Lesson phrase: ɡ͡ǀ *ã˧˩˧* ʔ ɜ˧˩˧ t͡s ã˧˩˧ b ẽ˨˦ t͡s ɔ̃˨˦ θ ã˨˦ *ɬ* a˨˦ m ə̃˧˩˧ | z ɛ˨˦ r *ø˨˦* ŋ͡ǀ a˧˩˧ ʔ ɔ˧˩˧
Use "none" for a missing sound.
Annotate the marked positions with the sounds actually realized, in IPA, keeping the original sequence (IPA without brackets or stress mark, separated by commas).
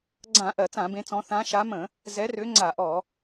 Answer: ã˧˩˧, ʃ, ø˨˦